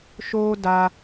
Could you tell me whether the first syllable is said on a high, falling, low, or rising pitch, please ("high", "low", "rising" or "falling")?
high